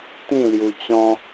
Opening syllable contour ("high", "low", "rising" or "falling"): falling